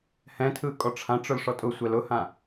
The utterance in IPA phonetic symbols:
h ɛ̃ tʰ ɯ kʼ ɔ ʈ͡ʂʰ ã ʈ͡ʂ ʊ l ʂ ɔ tʼ ʊ sʷ ɛ l ʊ h ã

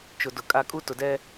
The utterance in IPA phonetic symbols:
t͡ʃ ʊ˨ d ʊ˨ kʼ a˦ kʼ u˦ t ʊ˨ d ɛ˦

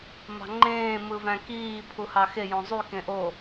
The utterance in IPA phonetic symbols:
m ɑ̤ ŋ͡ǃ ẽː m ɯ v æ̃ k iː pʰ u h ɑ x e j õ zˤ y k ẽ ʔ o

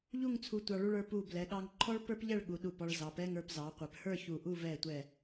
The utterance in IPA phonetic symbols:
ʎ u˥˧ ŋ t͡sʰ u˧ tʷ ɑ˧ ɭ u˧ ɭ ə˞˩˧ p u˧˩ b l ɛ˩˧ ɠ ɑ˧ ŋ ǃʰ ɔ˥ ɭ p ə˞˥ p ʎ ɛ˥˧ ɭ ɠ u˩˧ ɗ u˧˩ p ɔ˧ ɭ z ɑ˩˧ p ɛ˥˧ ŋ ə˞˧ p z ɑ˩˧ qʷ ɛ˩˧ p h ə˞˥˧ ç u˧˩ ʔ u˥˧ v ɛ˧˩ tʷ ɛ˧˩

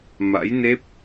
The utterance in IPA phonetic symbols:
m a̰˧˥ j n e˦˥ p̚

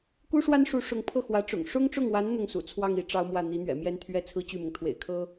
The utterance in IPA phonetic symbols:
k u˥ ʂ w a˥ n ʂ u˧˥ ʂ ʊ˧˥ ŋ pʰ ɤ˥˩ x w ä˧˥ ʈ͡ʂ ʊ̰˨˩ ŋ ʂ ʊ˥ ŋ ʈ͡ʂ ʊ˥˩ ŋ w a˧˥ n n̪ ʊ˥˩ ŋ s ṵ˨˩ t͡sʰ w ɑ˥˧ ŋ i˥˩ ʈ͡ʂ ɑ˥ ʊ̯ m w ä˥˩ n̪ i˧˥ n̪ ɥ ɛ̰˨˩ m j ɛ˥˩ n t̪ʰ ɥ ɛ˥ t͡sʰ ɹ̩˥ t͡ɕ y˥˩ m ʊ˩ ŋ t̪ʰ w ḛ˨˩ ɪ̯ kʰ ɤ˥

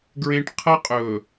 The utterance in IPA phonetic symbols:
ɡ ɹ ẽ˦ ʈ qʰ ɐ˦ qʼ ɵ˨

